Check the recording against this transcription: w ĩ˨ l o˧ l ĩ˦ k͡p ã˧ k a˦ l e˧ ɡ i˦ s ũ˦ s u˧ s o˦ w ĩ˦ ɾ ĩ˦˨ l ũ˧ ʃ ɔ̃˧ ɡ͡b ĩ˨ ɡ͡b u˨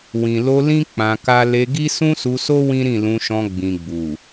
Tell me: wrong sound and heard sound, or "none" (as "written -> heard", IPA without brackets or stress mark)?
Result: none